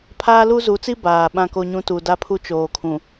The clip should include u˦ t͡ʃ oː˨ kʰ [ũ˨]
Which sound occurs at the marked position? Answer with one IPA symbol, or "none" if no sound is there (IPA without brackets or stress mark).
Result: ũ˨